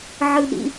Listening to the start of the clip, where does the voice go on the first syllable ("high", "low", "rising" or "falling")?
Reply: high